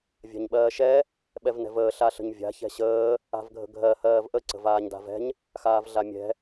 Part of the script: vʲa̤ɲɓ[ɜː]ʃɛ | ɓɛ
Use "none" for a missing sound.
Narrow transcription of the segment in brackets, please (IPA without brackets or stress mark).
ɜː